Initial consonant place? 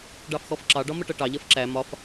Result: retroflex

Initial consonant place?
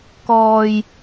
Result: velar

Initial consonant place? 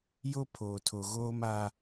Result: palatal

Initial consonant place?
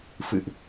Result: labial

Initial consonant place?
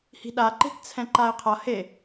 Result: glottal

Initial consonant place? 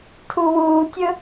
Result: alveolar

